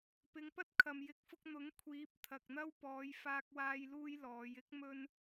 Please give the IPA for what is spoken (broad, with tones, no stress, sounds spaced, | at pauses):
p ɪ˨˧ ŋ p ɐ˥ t̚ kʰ ɐ˨ m j ɪ˨˥ k̚ f ʊ˧ k̚ n̪ ʊ˨˥ ŋ kʷʰ iː˨˥ p̚ t̪ʰ ɐ˨ k̚ n̪ ɐ˥ w p ɔː˨˧ j f aː˧ k̚ w aː˧ j l uː˥ j l ɔː˨˧ j ɪ˥ k̚ m ɵ˥ n